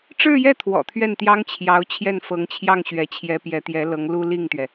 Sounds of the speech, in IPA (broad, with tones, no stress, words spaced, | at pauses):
ʈ͡ʂɻ̩˥˧jɛ˥˩ t̪ʰwɔ̰˨˩t̪ʰɥɛ˥˩nt̪jɑ˥ŋt͡ɕʰjɑ˧˥ʊ̯ t͡ɕʰjɛ˥˩nfɤ˧˥ŋt͡ɕʰjɑ˥˩ŋ ɕɥɛ˧˥t͡ɕʰjɛ˧˥ pjɛ˧˥t̪jɛ˧˥lɤ˧˥ŋ lu˥li˥˩ŋt̪ɥɛ˩